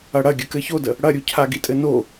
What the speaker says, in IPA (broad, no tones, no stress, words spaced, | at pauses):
ɐɽɐ ɡʲəkɘçodə | ɽɐɾʲucʰa ɡitʼɘno